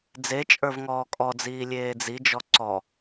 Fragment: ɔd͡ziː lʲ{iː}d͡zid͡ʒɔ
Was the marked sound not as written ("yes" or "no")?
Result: yes